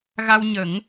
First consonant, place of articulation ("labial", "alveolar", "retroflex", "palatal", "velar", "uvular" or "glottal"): velar